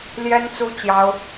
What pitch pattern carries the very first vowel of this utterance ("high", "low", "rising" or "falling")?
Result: high